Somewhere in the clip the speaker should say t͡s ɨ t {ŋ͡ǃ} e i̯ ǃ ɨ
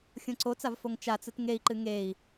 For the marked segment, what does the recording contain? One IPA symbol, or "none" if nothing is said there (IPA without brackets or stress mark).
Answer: ŋ